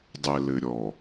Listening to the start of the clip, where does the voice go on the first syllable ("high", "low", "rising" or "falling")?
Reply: low